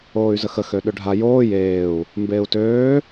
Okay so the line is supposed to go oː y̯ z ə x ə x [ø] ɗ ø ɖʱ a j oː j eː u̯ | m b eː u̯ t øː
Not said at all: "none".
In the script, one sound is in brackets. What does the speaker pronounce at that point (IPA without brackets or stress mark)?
ø